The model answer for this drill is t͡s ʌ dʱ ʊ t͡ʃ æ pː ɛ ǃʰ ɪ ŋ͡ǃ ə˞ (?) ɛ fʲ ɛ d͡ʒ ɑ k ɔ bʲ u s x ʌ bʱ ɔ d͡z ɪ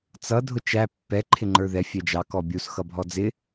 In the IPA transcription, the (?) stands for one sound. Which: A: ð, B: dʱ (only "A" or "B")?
A